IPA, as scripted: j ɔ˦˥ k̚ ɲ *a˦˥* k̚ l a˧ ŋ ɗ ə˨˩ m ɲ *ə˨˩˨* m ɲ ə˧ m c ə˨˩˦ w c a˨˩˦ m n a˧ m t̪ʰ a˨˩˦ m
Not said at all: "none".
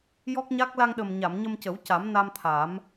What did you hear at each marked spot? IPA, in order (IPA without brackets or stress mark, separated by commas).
a˦˥, a˨˩˨